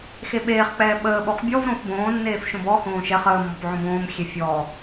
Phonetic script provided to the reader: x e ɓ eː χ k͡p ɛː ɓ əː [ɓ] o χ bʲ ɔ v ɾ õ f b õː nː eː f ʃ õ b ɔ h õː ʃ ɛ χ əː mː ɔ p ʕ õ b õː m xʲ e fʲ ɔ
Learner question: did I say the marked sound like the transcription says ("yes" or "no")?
yes